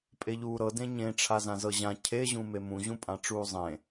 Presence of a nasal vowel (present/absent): present